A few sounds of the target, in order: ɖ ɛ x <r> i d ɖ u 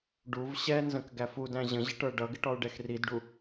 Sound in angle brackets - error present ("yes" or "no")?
no